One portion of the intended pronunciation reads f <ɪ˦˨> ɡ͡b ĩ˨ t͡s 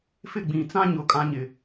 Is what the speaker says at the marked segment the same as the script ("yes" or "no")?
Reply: yes